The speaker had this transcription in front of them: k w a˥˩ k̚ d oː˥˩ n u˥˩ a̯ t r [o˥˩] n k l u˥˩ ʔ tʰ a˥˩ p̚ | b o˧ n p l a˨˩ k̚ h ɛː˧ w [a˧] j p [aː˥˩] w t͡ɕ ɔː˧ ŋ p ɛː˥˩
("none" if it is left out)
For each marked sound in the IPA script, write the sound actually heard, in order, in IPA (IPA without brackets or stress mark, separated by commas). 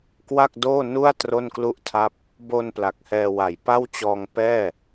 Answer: o˥˩, a˨˩, a˥˩